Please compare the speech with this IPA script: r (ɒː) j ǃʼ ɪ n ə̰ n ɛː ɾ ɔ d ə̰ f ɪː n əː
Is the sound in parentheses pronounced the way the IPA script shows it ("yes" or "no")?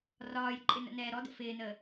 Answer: yes